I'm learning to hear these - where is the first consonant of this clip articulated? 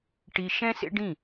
retroflex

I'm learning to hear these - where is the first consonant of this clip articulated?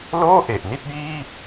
tongue tip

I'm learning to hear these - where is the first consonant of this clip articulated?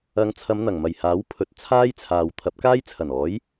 velum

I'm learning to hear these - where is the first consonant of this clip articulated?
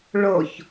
retroflex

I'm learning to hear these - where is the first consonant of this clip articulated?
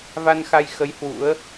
lips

